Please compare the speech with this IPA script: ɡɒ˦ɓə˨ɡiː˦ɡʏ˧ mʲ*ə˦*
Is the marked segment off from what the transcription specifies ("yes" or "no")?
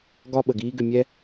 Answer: yes